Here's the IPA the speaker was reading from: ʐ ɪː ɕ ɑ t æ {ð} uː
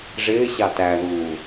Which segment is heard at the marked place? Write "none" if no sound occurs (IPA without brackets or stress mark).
ð